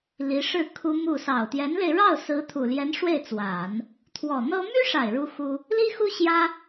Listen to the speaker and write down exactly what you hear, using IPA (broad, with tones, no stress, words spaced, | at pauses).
li˧˥ʂɻ̩˥˩ kʰu˥mu˥˩ sɑ˨˩ʊ̯t̪jɛ˧˥nle˧ɪ̯ ɻɑ˥˩ʊ̯sɹ̩˧˥ t̪ʰu˨˩ljɛ˧˥n ʂwe˥˩ɪ̯t͡swa˨˩˦n | t̪ʰwɔ˨˩n̪ɤ˥ my˥ʂa˨˩ɪ̯ ɻu˥xu˥ | li˥xu˥ ɕjä˥